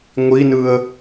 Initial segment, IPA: ŋʷ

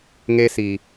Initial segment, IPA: ŋ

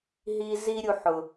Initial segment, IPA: ɦ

